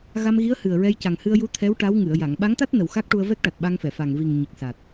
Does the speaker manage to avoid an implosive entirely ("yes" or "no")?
no